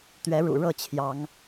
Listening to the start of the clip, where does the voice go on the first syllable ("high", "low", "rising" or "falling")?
rising